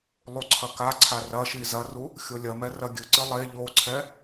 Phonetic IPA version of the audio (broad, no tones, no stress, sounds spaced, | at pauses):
lˠ u ǀʰ ɐ k a ǀʰ a r ɐ ʃ i z ɐ r u | xʲ o lʲ ɐ m ɛ r ɐ ɡʲ ɨ ǀ ɨ lˠ e ʎ o ǀʰ ɛ